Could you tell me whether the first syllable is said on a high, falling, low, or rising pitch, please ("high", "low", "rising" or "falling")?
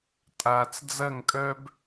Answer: low